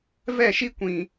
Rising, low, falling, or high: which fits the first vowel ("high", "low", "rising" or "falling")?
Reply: falling